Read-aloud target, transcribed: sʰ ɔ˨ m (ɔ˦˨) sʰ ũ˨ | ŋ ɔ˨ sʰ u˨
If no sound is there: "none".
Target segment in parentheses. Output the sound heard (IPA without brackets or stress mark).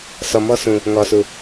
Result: ɔ˦